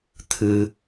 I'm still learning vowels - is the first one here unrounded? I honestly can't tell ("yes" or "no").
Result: yes